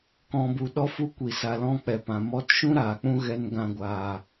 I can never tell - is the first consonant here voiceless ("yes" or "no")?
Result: yes